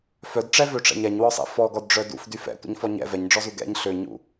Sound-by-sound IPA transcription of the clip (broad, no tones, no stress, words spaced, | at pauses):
fœdʈ͡ʂɛvøʈ͡ʂɛ̰ɲ ɛɲwɔsˤɛ̰ fɔɡɔdɖ͡ʐœ dṵfdy fɛ̰tʷə̰ɲfɔ ɲɛ̰ vɛɲɖ͡ʐɔzu ɡɛ̰ɲ ɬøɲṵ